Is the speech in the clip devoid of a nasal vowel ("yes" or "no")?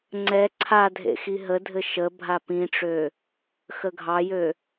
no